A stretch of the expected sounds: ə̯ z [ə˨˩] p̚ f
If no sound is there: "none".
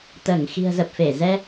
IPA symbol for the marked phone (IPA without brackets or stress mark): ə˨˩